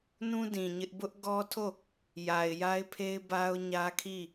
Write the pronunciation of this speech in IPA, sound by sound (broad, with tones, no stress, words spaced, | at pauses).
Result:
nũ˦dĩ˨ ɲɪ˦ʔ bʊ˦ʔ ɡɔ˦tʰo˦˨ | ja˨ɪ̯ja˦ɪ̯pʰe˦ɪ̯ ba˦ʊ̯ ɲä˦kʰi˦˨